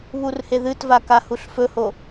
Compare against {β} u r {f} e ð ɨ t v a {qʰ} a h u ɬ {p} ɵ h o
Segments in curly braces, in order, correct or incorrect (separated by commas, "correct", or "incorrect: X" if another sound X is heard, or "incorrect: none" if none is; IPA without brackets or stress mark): correct, incorrect: h, incorrect: k, incorrect: f